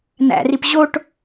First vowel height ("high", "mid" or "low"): low